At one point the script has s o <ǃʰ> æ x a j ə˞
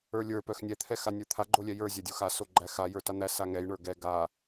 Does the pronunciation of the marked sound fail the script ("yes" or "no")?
yes